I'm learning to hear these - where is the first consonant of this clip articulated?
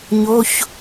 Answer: palate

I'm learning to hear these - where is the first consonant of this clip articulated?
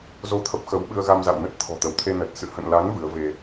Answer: tongue tip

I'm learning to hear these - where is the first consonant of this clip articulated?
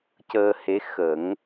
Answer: palate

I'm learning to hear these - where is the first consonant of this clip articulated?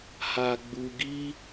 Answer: throat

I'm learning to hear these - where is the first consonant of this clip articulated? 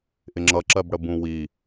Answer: throat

